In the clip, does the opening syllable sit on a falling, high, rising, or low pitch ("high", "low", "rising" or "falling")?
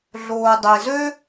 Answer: low